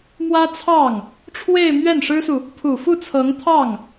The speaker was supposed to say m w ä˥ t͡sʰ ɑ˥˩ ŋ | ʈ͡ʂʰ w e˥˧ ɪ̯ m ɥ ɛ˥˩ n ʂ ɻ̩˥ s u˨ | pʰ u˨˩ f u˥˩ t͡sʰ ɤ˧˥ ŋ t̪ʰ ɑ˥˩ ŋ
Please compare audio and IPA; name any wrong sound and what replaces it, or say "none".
none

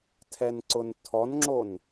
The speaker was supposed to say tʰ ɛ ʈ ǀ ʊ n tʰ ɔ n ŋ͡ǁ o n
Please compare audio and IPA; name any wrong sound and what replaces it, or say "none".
ʈ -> n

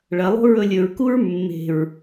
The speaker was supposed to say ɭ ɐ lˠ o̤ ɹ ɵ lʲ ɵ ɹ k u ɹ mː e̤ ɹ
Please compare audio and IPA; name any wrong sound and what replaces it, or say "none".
none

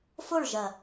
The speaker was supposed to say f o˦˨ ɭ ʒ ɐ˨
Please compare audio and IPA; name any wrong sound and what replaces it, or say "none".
none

